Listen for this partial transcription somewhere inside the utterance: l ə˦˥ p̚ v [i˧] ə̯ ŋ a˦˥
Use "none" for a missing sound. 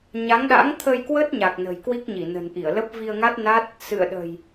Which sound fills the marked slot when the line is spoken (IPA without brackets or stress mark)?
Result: i˧